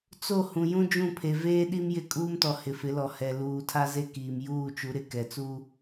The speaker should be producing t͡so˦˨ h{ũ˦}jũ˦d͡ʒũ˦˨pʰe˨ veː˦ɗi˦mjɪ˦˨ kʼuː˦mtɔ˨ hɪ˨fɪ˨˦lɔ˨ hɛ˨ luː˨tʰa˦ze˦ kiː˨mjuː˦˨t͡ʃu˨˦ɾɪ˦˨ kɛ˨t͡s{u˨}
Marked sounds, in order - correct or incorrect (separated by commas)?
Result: incorrect, incorrect